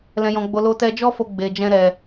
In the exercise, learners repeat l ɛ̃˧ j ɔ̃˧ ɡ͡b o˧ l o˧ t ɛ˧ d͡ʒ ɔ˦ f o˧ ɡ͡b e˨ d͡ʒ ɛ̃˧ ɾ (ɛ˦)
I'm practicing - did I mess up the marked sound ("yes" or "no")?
yes